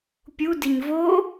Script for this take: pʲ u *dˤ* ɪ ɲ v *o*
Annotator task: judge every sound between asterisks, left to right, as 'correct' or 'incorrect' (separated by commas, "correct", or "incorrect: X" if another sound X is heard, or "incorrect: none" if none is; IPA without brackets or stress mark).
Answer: incorrect: d, correct